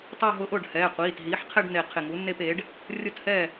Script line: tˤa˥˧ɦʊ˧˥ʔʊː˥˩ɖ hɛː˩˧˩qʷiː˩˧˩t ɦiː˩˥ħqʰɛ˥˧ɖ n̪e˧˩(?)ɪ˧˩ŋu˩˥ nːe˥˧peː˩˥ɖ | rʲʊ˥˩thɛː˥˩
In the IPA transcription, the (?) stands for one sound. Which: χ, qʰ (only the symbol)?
qʰ